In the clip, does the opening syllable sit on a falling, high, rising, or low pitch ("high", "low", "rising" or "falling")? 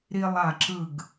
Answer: high